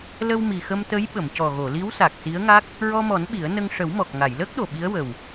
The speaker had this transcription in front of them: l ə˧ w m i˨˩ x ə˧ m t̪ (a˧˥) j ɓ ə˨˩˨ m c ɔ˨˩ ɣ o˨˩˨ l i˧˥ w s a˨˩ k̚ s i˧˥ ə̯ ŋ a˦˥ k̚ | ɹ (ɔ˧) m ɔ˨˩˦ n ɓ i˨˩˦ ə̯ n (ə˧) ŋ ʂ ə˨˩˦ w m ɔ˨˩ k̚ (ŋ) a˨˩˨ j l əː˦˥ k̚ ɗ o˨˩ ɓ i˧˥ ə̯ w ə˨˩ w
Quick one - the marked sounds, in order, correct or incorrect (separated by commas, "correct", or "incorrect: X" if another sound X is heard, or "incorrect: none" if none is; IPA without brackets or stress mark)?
incorrect: ə˧˥, correct, correct, correct